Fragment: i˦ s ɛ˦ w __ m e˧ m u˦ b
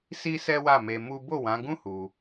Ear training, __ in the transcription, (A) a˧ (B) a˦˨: B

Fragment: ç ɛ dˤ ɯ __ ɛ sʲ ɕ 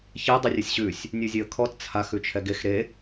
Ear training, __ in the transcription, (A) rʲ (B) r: A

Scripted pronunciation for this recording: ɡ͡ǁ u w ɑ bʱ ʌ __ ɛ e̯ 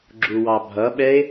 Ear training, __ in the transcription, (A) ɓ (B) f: A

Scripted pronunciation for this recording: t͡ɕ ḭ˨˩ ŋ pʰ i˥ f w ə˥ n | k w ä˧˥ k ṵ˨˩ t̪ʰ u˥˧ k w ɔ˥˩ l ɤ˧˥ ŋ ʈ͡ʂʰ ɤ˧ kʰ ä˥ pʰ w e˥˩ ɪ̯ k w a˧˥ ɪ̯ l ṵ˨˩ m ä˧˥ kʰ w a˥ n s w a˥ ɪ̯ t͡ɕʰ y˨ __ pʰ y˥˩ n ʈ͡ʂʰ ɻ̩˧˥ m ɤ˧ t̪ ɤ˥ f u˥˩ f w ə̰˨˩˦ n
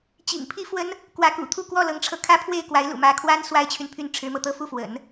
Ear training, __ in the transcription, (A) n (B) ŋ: A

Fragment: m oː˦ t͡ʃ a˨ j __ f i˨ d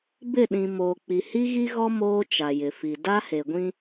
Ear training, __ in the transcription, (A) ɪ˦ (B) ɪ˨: B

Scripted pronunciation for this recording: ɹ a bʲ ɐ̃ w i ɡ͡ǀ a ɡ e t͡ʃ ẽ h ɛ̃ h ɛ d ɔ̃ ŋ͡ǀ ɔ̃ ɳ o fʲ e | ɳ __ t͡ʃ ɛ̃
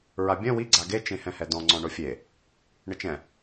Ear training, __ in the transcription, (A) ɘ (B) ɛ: A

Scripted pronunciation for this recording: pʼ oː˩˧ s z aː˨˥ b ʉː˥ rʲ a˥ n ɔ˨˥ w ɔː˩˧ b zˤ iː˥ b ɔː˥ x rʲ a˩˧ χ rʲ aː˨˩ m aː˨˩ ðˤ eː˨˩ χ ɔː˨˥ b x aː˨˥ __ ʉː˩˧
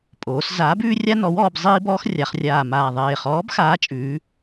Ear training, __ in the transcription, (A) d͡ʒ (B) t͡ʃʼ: B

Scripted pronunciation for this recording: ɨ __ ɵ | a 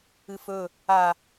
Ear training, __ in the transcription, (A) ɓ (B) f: B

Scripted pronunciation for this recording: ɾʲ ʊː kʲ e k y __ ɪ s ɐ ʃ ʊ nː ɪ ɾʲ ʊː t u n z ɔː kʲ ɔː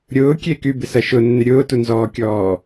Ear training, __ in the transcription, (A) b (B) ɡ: A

